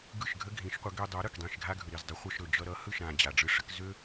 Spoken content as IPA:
ɡɯ˥˩ʃɡʱə˥ɡʱĩ˩˥ʃqʷə˩˥ ɡø˧dˤo˩˥ ɾɯ˩kdˤĩ˥˩ʃ ɡʱa˥ɡʱɯ˩ɾi˥˩zdˤi˩˥ χʷʌ˧ʃɾɵ˩ d͡ʒʌ˧ɾʌ˩˥ hɯ˥˩ʃ ɾã˩ d͡ʑa˩ɖ͡ʐɯ˧ʂə˩˥k zø˥

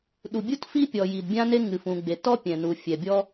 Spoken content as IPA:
ɗu˩bʲu˥tfi˥pʲɔ˩ ji˩dbʲã˥ne˥ ŋɨ˩f ũ˩ ɡ͡be˩tɔ˥pʲɛ̃˩nu˩ fʲɛ˩bʲɔ˥

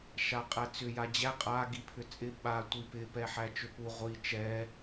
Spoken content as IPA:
ʃaqʼæt͡sʏ jad͡ʑæ qʼa ɡipʰʏt͡sʼɪ ɓa tʷipɪ pɛħæt͡ʃʏpu ʁʷi t͡ʃɛ

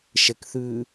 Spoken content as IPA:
ʃɛkθʉ

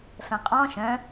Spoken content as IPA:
fɛ̃qʼɔ̃ ʃœ̃

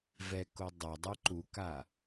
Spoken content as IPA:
vɛko dˤɐdˤɨ ǃuka

